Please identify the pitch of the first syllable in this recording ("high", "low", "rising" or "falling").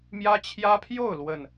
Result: high